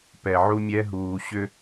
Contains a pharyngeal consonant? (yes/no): yes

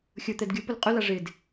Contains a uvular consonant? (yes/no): yes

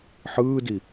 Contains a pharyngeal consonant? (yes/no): yes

